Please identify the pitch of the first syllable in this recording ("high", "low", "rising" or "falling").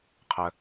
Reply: low